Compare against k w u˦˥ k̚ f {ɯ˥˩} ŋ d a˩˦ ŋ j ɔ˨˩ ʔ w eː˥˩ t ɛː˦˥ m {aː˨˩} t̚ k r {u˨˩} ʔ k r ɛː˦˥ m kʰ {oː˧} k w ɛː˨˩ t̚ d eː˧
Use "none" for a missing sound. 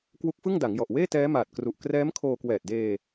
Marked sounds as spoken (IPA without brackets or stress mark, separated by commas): ɯ˥˩, aː˨˩, u˨˩, oː˧